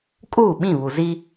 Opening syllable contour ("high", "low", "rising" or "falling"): falling